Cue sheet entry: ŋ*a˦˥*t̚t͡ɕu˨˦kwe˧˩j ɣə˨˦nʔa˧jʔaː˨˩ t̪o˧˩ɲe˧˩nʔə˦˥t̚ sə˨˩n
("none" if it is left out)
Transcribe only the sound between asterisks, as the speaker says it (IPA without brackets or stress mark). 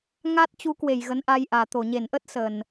a˦˥